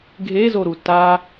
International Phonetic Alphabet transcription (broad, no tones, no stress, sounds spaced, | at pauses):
ɡʱ e z o ɾ u t a